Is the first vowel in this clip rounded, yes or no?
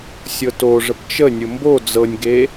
no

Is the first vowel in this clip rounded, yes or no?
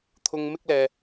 yes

